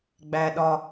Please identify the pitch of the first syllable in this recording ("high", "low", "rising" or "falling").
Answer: low